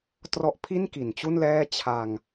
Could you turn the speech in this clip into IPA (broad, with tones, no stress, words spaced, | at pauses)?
trɔ˦˥ʔ pʰi˥˩nki˩˦nt͡ɕu˥˩n lɛː˥˩ t͡ɕʰa˧ŋ